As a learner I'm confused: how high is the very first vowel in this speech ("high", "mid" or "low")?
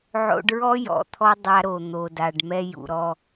mid